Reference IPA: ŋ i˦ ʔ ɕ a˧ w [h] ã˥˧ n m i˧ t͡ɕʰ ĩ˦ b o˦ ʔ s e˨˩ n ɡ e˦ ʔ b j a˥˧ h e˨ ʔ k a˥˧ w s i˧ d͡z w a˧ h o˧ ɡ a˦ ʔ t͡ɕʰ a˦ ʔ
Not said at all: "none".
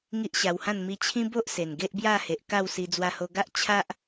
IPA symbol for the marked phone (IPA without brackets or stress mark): h